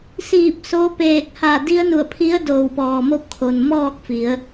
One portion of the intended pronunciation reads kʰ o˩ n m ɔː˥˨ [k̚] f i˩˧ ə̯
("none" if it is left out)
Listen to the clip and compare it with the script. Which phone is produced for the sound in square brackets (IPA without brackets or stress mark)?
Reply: k̚